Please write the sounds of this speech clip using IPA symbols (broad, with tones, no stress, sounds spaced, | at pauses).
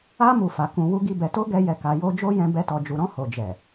a˦ m u˦˨ f a˨˦ k ũ˧ w u˦ ɡ i˦ b ɛ˧ t o˦ ɡ ɛ˧ j ɛ˧ k a˧ j o˦ d͡ʒ o˦ j ɛ̃˧ b ɛ˦ t ɔ˧ d͡ʒ u˧ ɾ ɔ̃˧ h o˨ d͡ʒ ɛ˨